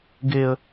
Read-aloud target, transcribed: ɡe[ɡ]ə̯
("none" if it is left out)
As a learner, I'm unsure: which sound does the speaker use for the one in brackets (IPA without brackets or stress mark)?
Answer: none